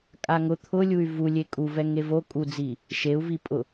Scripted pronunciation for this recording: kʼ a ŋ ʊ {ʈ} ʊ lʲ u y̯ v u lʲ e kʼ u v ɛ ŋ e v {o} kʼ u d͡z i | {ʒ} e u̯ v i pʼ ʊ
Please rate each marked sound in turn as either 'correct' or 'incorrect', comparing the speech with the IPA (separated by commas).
incorrect, correct, incorrect